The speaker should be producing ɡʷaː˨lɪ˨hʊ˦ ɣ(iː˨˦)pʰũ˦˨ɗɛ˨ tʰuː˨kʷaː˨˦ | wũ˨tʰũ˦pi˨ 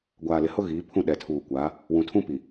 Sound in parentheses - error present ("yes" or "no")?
no